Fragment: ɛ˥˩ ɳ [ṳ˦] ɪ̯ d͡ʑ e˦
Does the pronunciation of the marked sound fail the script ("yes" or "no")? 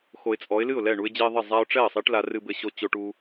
yes